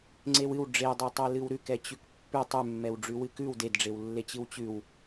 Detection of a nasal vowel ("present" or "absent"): absent